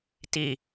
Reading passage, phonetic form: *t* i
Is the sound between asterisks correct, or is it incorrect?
correct